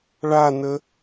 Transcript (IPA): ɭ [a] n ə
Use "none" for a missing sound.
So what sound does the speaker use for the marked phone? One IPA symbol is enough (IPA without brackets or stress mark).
a